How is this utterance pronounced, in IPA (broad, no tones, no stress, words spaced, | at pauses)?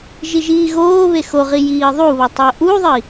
ʒiʒiːɣoː βexoʁi jiːðˤuβɒ tˤoʔuðˤi